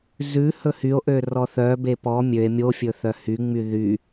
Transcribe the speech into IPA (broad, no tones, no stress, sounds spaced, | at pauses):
z ʉ h ɵ h y o̯ ʔ ø r ɔ θ œ b e p ɔ mʲ ø e̯ mʲ o fʲ ɵ θ œ h y ŋ͡m y ð y